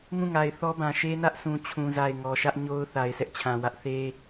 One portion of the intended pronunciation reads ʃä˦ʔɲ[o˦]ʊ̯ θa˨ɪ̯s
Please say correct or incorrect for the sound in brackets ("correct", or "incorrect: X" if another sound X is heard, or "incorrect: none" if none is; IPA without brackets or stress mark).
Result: correct